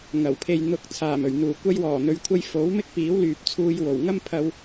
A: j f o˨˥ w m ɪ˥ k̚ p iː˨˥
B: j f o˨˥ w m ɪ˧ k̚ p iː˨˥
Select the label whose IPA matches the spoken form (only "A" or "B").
A